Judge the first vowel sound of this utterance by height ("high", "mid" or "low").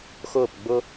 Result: high